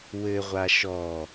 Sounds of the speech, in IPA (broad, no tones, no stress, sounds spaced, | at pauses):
w ɘ ʁʷ a ʃ ɔ